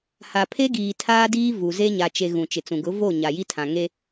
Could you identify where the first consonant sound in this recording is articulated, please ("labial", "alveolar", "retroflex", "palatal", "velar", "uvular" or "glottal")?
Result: glottal